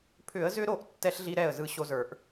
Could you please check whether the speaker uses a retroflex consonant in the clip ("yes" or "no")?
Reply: no